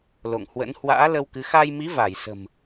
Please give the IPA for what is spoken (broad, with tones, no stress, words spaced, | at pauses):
lo̰˧˨ŋhwə̰˧˥n hwa̰ː˧˥ lə˧w kɨ˨˦ xaː˧jmi˨˦ va˧˩j sə̤˨˩m